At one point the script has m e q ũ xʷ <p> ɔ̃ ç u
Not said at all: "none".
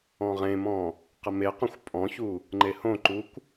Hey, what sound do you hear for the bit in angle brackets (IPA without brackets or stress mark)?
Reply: pʼ